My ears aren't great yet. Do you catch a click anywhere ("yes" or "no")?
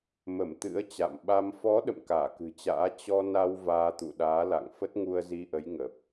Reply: no